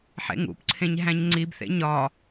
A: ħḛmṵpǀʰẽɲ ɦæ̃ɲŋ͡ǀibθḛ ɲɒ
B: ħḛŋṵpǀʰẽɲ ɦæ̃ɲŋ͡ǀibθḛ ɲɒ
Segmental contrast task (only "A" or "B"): B